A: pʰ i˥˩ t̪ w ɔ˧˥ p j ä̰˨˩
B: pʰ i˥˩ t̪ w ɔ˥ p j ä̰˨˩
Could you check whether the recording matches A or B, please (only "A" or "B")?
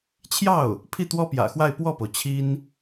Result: B